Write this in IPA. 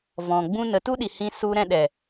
v ɔ̃˨ ɡ͡b ũ˦ n ə˧ t u˦ ɗ i˨ h ĩ˧ s u˧ ɾ ɛ̃˧ ɗ ɛ˨

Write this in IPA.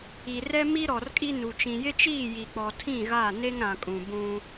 i˨ r ɛ˦ m i˦ ɾ ɔ˨ r kʼ i˦ n u˨ t͡ʃ ĩ˨ j ɪ˦ t͡ʃ iː˦˨ j i˨ k͡p ɔ˨ tʰ ĩ˦˨ ɣ a˦˨ n e˦ ŋ ɾ ã˨ kʼ ũ˨ b ũ˦

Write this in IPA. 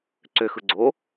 ǀ ø x ɯ ɡ͡ǀ o

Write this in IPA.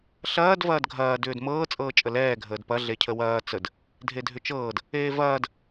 ɬ ɐː d v ɐː d ɡʱ ɐː d ʏː d m ɤː t͡sʼ ɤː t͡ʃʼ ə l ɛː ɡʱ əː d p ɐ ɮ e cʰ ə w ɐː t͡s ə d | dʱ e dʱ ʏ t͡ʃ ɤː d | eː v ɐː d

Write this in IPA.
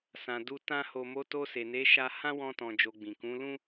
s ã˨ d u˧ t ã˧ h o˨ m o˨˦ t o˧ s e˨ n e˨˦ ʃ a˧ h ã˦ w ɔ̃˧ t ɔ̃˨ d͡ʒ o˨ ɡ͡b ĩ˨ k ũ˨˦ l ũ˦

